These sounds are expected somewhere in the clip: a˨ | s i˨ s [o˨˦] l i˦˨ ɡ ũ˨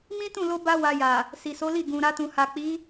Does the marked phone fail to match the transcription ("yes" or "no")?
no